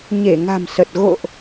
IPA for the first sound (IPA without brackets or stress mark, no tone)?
ɲ